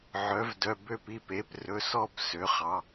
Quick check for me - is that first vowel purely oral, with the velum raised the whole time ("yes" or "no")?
yes